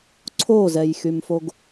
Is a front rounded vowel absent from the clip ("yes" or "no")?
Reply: no